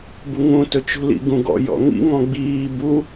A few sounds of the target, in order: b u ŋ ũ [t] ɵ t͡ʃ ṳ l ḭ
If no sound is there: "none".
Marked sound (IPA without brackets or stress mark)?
t